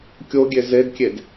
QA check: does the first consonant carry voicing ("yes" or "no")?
no